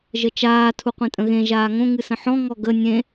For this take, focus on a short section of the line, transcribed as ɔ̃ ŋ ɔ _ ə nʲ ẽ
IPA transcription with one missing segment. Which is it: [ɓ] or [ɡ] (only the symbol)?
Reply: ɡ